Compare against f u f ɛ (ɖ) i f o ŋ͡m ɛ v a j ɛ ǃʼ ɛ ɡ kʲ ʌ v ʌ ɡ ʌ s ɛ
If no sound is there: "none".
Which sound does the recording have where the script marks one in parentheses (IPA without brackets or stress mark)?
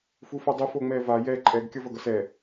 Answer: dˤ